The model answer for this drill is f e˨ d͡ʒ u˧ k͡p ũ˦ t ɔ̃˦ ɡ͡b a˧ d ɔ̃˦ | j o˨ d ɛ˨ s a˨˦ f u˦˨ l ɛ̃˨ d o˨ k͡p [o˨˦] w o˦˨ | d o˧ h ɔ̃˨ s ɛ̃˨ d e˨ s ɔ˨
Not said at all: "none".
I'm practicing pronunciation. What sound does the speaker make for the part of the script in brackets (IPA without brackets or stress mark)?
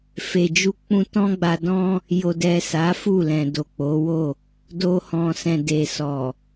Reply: o˨˦